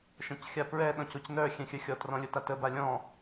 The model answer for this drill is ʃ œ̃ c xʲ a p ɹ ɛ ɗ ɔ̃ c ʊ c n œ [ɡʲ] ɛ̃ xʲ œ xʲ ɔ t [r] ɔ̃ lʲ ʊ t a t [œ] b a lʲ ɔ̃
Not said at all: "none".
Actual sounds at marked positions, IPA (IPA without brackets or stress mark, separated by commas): xʲ, r, ə